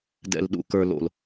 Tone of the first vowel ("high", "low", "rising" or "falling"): low